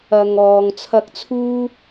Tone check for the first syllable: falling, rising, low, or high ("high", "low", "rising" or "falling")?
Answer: low